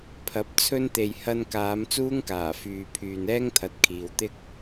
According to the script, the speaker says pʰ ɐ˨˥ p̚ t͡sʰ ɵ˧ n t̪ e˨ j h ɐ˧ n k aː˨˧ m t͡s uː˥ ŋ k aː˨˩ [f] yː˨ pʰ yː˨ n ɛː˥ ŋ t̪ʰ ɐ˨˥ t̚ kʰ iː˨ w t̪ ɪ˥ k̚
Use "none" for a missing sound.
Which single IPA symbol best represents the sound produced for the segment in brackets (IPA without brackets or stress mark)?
f